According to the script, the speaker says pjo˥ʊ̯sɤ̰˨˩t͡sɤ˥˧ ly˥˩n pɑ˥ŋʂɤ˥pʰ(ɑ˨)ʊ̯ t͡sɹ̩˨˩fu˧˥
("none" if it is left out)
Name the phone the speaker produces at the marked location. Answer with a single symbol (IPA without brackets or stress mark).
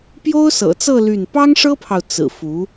ɑ˨